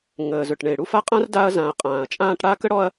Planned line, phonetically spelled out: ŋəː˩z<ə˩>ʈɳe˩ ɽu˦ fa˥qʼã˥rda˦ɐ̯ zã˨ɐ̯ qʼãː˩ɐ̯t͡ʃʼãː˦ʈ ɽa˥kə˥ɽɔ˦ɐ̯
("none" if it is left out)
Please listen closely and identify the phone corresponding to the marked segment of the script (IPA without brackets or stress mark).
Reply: ɵ˩